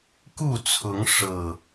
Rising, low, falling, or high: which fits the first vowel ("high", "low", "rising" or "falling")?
falling